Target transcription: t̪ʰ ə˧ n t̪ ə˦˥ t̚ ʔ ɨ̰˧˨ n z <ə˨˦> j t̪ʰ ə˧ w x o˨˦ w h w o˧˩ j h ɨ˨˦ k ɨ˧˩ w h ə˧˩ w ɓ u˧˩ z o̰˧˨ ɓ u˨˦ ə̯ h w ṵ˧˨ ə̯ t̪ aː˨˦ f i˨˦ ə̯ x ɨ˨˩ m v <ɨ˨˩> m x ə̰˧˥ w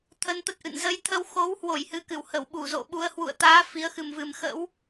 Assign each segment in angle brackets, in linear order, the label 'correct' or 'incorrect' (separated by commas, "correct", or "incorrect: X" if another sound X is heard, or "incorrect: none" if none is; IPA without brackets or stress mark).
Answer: correct, correct